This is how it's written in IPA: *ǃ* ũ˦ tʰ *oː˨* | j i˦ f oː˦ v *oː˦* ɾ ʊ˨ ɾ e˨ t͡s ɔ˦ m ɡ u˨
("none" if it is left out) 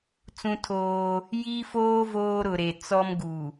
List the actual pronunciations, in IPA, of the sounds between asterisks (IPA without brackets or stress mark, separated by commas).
t͡s, oː˦, oː˦